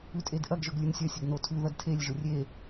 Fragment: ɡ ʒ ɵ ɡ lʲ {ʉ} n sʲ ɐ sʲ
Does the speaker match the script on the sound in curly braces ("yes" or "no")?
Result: yes